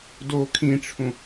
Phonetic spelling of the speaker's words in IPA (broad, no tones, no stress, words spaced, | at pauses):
do kʰĩʈ͡ʂʰũ